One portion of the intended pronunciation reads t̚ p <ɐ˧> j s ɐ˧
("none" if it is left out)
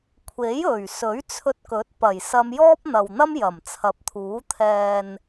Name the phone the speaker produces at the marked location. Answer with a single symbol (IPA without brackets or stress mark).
ɐ˨˩